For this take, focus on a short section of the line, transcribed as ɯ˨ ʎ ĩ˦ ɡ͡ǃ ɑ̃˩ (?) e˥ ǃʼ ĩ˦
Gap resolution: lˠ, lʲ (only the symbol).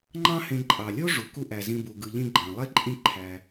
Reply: lˠ